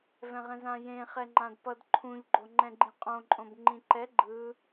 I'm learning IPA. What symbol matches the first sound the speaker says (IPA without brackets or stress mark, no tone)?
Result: v